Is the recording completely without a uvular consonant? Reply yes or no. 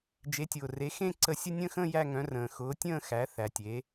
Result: yes